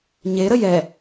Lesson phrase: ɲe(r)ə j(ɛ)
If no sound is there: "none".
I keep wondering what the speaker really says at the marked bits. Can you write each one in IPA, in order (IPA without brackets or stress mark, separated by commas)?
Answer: ɾ, ɛ